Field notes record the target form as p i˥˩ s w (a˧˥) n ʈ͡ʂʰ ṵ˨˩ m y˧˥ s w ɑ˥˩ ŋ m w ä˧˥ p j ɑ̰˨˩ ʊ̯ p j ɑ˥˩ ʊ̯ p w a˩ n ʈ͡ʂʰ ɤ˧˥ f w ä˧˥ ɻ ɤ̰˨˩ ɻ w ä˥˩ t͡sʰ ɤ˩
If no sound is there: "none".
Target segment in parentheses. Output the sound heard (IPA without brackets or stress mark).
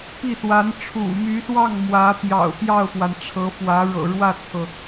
a˧˥